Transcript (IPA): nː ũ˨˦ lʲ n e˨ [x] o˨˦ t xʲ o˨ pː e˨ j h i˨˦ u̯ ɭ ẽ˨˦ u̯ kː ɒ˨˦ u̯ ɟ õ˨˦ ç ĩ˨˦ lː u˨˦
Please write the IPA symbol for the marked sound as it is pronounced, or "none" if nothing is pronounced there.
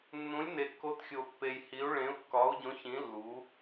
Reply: kː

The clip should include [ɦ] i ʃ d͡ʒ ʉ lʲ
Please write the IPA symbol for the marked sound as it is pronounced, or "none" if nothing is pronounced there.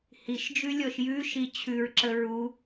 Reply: h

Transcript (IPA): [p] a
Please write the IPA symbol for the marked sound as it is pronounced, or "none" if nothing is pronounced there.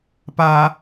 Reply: p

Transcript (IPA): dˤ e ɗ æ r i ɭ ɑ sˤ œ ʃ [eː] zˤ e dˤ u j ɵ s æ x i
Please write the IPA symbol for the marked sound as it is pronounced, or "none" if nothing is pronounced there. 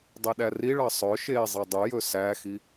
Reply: eː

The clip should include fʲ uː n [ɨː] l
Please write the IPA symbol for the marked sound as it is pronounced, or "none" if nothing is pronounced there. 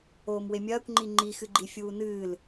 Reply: ɨː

